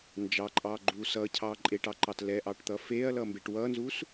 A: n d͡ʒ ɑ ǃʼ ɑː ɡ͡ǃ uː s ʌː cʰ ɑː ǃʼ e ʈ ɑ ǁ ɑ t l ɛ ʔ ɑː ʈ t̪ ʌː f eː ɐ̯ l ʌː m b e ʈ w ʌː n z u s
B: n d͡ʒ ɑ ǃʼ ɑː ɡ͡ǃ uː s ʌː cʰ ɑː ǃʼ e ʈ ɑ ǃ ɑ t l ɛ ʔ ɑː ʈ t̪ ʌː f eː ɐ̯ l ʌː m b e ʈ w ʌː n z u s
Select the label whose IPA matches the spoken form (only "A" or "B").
B